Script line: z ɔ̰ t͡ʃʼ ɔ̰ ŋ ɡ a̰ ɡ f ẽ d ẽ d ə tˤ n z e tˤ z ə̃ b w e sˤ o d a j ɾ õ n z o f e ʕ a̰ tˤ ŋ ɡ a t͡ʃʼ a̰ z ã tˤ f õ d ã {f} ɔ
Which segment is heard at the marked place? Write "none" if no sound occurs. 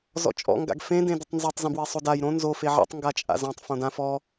f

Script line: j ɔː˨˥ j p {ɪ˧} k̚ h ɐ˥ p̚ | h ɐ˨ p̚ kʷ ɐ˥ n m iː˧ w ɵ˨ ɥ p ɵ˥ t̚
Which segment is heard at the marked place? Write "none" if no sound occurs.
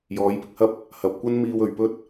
ɪ˧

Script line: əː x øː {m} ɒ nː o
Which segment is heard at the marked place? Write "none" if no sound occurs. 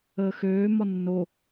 m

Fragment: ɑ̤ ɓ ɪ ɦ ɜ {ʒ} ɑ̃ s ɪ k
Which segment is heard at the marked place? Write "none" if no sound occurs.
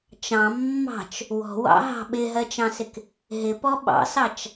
t͡ʃ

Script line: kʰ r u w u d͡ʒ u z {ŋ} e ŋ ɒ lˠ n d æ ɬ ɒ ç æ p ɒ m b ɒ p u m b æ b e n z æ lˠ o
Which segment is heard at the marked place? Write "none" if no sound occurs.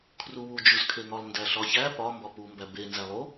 kʰ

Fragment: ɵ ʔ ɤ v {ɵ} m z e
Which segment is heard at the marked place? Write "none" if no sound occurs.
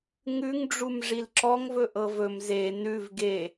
ɵ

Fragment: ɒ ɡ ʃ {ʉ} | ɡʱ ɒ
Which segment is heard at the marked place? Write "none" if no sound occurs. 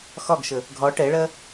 ə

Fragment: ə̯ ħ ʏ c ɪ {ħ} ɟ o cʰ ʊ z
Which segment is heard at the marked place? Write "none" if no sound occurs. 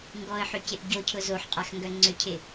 ʔ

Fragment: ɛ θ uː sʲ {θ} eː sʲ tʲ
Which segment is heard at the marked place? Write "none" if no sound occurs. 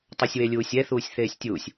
θ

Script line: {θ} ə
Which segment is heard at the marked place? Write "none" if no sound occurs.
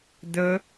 d̪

